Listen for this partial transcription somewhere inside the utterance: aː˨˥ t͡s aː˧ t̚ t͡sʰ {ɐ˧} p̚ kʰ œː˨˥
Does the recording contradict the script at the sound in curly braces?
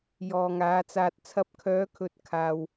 no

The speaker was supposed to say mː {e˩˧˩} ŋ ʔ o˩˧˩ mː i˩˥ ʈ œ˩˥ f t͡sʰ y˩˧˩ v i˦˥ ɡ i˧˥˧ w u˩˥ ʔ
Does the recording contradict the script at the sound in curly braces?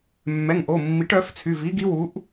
yes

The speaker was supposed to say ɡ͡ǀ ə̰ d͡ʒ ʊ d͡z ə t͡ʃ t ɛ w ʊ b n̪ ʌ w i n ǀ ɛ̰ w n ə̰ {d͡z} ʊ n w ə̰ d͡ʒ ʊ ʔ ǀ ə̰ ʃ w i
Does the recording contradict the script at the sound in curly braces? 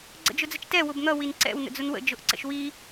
no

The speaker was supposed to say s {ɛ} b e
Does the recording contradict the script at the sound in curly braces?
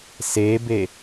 yes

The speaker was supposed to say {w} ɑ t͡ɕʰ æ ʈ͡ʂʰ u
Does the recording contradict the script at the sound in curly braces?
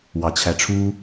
no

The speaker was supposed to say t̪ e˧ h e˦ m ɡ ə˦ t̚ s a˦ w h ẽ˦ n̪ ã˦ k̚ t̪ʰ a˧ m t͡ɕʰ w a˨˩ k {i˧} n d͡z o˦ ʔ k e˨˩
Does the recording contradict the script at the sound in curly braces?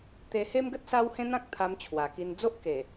no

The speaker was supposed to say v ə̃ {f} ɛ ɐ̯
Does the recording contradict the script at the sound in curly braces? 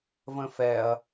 no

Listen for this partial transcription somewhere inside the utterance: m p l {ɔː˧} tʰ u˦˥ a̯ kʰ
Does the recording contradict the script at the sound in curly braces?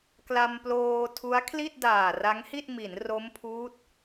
yes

